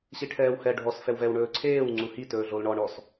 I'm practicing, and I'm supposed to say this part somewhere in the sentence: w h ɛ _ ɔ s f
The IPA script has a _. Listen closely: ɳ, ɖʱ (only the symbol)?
ɖʱ